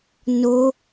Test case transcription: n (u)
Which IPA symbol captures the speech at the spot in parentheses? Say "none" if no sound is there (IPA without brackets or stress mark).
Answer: o